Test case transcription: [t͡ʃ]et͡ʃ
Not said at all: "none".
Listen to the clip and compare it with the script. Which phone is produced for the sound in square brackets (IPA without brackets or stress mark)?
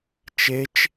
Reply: t͡ʃ